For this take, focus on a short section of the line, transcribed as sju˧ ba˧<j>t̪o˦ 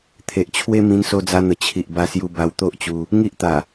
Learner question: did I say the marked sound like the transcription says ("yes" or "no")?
no